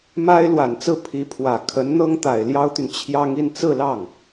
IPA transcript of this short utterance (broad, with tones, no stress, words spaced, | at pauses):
ma˥ɪ̯ lwa˨˩nt͡sɹ̩˥˩ pʰi˧˥pʰwä˨˩ kʰə˧˥nn̪ɤ˥ŋt̪a˨˩ɪ̯ ljɑ˥ʊ̯t̪y˨n t͡ɕʰjɑ˥ŋ i˥˧nt͡sɹ̩˥˧lɑ˥˩ŋ